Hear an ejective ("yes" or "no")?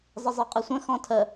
yes